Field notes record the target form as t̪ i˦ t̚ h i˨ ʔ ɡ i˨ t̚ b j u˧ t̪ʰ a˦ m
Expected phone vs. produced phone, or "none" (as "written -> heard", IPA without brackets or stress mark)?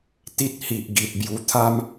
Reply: none